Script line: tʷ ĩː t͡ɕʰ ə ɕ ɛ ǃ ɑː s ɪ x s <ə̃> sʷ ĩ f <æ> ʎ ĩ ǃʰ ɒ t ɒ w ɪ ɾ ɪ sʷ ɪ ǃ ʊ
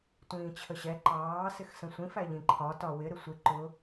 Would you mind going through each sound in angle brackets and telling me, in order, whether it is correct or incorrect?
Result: correct, correct

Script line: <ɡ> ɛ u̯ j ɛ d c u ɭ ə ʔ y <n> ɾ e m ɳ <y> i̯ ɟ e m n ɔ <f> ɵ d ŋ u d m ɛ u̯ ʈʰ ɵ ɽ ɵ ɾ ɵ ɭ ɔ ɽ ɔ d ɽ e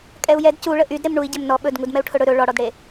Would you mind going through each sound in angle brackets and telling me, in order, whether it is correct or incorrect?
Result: incorrect, incorrect, incorrect, incorrect

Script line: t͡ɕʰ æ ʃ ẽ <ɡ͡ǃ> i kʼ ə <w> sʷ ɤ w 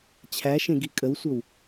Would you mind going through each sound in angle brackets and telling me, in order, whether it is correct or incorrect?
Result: incorrect, correct

